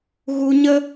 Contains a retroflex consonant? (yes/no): no